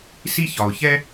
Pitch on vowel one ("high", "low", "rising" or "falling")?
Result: high